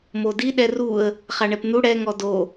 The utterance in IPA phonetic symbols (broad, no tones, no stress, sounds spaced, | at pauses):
m o d i ɗ ɛ r u ə̯ | χ a ɳ ɛ p n̪ u ɽ ɛ ŋ ɔ d o